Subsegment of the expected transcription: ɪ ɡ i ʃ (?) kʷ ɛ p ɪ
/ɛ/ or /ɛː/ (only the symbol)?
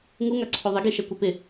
ɛ